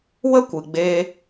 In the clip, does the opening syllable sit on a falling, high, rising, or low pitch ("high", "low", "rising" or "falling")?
high